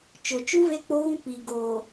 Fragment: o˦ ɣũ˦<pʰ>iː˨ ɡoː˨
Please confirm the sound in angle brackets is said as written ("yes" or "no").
no